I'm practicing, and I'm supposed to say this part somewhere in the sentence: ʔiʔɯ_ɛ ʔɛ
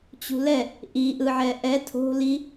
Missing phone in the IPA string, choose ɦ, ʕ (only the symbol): ʕ